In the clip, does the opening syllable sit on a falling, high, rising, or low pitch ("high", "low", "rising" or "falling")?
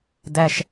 high